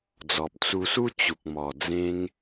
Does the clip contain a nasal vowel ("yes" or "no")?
yes